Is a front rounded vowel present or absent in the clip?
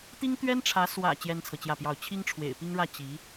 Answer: absent